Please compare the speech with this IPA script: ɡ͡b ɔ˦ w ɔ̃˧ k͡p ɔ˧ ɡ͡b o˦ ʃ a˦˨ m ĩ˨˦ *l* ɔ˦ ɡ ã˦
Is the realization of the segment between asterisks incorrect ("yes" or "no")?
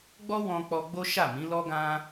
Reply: no